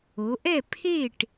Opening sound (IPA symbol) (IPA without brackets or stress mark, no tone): o